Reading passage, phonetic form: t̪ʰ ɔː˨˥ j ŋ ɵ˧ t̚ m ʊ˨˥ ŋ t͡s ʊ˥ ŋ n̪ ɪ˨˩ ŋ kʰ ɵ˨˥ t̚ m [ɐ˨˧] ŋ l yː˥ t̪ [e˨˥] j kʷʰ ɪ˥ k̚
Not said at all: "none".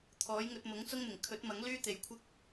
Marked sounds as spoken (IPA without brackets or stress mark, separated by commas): ɐ˨˥, e˨˧